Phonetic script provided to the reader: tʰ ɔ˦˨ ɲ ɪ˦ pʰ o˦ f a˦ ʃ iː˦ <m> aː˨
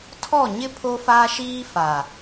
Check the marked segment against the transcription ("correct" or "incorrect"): incorrect